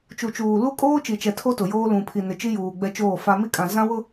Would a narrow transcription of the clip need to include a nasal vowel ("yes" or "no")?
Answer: yes